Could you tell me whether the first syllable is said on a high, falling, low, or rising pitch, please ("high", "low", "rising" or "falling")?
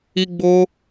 high